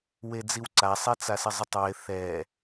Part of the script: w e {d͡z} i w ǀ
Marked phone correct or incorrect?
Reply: correct